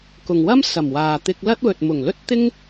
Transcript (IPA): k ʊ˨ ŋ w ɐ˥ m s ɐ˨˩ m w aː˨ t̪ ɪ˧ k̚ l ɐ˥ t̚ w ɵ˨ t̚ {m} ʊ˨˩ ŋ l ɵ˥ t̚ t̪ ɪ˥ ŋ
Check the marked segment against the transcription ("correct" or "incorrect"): correct